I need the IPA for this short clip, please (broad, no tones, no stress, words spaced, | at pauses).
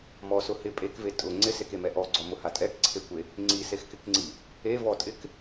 mɔsʊ hɪ pʼekve tʼʊ ŋ͡ǀɪsekemɛ ʔɔɡ͡ǀɔmʊha tʼɛkǀʰekʷe | ŋ͡ǀisexkɪkŋ͡ǀi | evɔtʼɪk